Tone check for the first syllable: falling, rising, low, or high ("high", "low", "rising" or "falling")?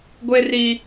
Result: high